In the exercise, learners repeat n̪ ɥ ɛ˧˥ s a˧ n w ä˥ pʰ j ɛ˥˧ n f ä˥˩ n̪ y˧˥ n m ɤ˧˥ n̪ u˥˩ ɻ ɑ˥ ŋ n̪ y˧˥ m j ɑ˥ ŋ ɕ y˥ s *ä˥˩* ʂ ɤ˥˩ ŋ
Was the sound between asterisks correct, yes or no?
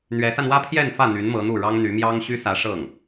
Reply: no